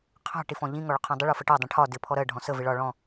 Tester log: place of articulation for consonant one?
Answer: uvular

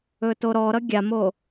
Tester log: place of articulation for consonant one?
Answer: alveolar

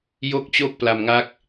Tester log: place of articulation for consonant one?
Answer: palatal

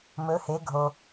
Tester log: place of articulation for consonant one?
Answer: labial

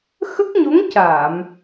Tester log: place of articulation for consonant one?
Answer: velar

